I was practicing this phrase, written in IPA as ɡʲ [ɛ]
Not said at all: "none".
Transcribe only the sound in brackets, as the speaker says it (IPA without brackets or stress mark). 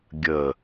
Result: ə